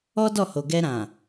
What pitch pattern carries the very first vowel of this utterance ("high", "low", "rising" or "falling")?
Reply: high